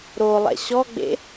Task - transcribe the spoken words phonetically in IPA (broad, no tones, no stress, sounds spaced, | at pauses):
ɾ o lˠ ɛ̰ ɕ ɔ ɡ͡b ḛ